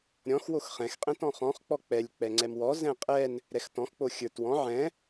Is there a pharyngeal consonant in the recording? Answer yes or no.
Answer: yes